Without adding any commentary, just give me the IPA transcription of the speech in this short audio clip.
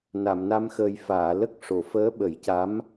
n a˨˩˨ m n a˧ m x əː˨˩ j f aː˨˩˨ l ə˦˥ k̚ ʂ o˨˩˨ f əː˧˥ ɓ ə˨˩˦ j c a˧˥ m

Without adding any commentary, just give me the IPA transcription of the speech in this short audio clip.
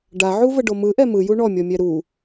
ɖ a ʕ u v ə ɖ o m ɯ ʔ ɛ m ɯ j u ɳ ɔ mʲ ɔ mʲ ɛ ɾ u

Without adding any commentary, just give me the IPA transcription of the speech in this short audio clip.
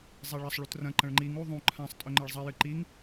zˤ e ɭ ɐ sˤ ɭ u t r ɐ̃ ǃ ɐ̃ ɭ ŋ͡ǃ i ŋ u ðˤ ũ ǃʰ ã sˤ tʼ ɵ ŋ͡ǃ e ɭ zˤ ɐ j ɨ ǃ i ŋ

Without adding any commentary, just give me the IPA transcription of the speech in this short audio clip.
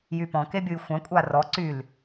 j y p ɔ̃ k e bʲ u j xʷ ã kʷʼ a r ɔ ǀ y l

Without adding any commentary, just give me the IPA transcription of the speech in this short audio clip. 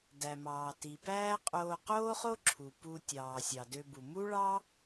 d æ˩ m ɑː˩ t i˩ p æː˥ qʼ oː˧ q oː˥ χ o˥ ǁʰ u˩ p u˧ tʲ ɑː˩ sʲ ɑ˩ d ø˧ b u˩ m u˥ ɭ ɑ˥

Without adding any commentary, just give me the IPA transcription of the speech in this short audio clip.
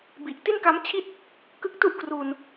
b i˨˩ ʔ t i˥˩ n k a˦˥ m t͡ɕʰ i˥˩ t̚ | k ɯ˦˥ k̚ t u˥˩ ʔ k r uː˧ n

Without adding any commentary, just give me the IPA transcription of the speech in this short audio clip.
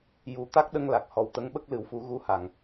j u˨˩˦ t̪ a˦˥ k̚ ɗ ə˧ ŋ l a˨˩ k̚ h ɔ˨˩ w t̪ ə˧˥ ŋ ɓ ə˦˥ k̚ l ɨ˨˩˦ w f u˨˩˦ ɣ u˧ h a˨˩ ŋ

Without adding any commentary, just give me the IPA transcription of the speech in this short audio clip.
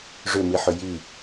ʐ ʏ m i ħ ʏ j i

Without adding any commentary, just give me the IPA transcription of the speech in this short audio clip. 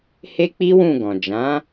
h e˦ k͡p i˦ w ũ˦˨ ɡ ɔ̃˨ d͡ʒ ã˨˦

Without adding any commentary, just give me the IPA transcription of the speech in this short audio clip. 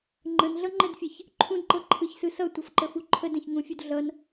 ŋ͡ǃ ə̃ n ɮ ʌ ŋ͡ǃ ɛ d fʲ ɛ ç | ǃʰ ũ d ǃ ɤ ǃʰ ɯ ç s ɯ s ʌ tʷ ʌ f ǃ ə f u ǃʰ ə d ə̃ ç ŋ ũ fʲ u d ɮ ʌ n

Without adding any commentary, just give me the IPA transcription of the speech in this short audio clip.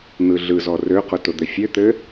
n̪ ɯ ɮ ɯ z ɔ r ø q ʊ t ʊ d̪ ɘ fʲ ø t̪ ɘ

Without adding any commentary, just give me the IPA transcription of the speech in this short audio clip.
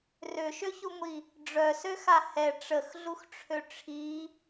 r ø ʃ ø ç u ŋʷ i | ɖ͡ʐ œ s ø x a h ɛ ʈ͡ʂ ə x ɮ u x ʈ͡ʂʰ ø ʈ͡ʂʰ i

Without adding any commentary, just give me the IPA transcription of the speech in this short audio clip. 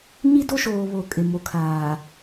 ɲ i˦ d o˦ ʃ oː˨ β o˨ kʼ ɪ˨ m o˨ kʰ aː˨

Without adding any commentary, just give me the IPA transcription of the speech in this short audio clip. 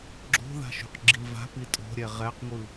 ɡ͡ǁ o̤ ð a̤ ʃ ṳ q ɡ͡ǁ i v a̤ p i tʼ o̤ ɾʲ ɛ ʁ ɛ q ŋʷ ɯ

